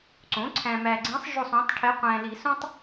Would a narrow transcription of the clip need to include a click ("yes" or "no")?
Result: yes